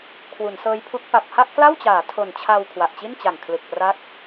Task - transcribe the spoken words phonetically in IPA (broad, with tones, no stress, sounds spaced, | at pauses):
kʰ w u˩˦ n s ɤː˦˥ j pʰ u˦˥ k̚ p a˨˩ p̚ h a˥˩ ʔ k l a˥˩ w t͡ɕ aː˩˦ tʰ o˨˩ n t͡ɕʰ a˧ w kʰ w a˨˩ ʔ t͡ɕ i˥˩ n t͡ɕ a˨˩ ŋ kʰ l ɯ˨˩ k̚ p r a˦˥ k̚